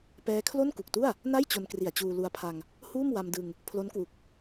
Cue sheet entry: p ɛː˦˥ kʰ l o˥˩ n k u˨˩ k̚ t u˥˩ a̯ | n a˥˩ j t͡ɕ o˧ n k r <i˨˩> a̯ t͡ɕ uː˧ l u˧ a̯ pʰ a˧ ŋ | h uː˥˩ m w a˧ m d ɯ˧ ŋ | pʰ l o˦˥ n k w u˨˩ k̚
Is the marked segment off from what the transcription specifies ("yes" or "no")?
no